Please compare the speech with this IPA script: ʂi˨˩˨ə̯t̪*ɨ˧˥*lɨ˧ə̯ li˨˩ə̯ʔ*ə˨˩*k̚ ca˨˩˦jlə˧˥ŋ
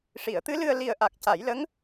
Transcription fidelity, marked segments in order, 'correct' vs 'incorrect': correct, incorrect

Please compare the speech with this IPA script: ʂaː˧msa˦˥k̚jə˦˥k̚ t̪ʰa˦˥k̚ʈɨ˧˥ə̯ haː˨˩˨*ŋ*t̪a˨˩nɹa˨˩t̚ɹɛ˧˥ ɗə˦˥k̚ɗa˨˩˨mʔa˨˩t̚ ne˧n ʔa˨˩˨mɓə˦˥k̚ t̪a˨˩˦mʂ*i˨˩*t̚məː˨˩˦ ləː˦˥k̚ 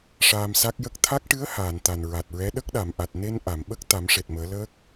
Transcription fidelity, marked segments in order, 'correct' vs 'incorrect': incorrect, incorrect

